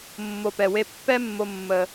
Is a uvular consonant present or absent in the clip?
absent